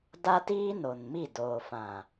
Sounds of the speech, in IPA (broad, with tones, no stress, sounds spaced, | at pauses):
d a˦ t iː˦ n o˨ n m i˦˨ d oː˨ f ã˨